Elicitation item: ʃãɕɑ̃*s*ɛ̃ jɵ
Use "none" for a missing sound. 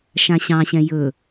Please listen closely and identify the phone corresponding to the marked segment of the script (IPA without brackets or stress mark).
ɕ